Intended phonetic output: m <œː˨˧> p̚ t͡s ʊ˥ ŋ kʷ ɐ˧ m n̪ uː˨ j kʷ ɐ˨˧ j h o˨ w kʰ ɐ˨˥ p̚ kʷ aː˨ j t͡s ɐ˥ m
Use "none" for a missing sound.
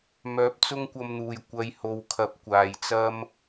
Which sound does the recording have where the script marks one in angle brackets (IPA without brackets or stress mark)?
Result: œː˨˥